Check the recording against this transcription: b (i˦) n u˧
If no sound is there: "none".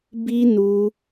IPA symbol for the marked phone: i˦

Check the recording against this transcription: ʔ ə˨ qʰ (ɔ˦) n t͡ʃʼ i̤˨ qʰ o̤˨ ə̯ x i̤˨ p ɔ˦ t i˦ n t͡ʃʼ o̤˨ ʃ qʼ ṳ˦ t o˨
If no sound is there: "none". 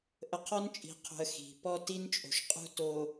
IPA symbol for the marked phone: ɔ˦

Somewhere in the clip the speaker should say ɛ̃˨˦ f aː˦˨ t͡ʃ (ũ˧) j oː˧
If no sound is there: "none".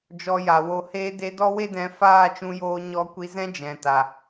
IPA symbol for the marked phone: ũ˧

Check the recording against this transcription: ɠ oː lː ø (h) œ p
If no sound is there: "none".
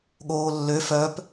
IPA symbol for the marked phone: f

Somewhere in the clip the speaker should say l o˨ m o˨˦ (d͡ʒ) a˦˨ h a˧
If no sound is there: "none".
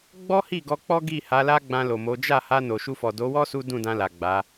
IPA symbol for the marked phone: d͡ʒ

